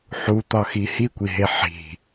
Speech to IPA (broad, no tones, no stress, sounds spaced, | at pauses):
ħ u t̪ ɒ x i h i kʷ i ɦ e ħ i̤